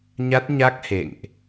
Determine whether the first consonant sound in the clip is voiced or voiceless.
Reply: voiced